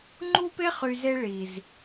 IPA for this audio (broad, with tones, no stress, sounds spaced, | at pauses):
ŋ͡ǃ u˦ p e˦ χ y˨ z e˧ ɭ i˨ z